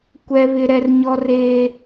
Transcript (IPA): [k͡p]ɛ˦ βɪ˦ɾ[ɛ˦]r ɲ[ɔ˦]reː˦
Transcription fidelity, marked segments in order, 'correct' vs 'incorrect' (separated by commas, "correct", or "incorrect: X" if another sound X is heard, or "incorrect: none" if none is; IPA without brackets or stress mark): incorrect: kʷ, correct, correct